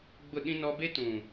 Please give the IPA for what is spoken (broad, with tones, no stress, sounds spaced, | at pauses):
ɡ͡b ʊ˦˨ ɗ ĩ˦ n ɔ˦ b e˦ t ũ˨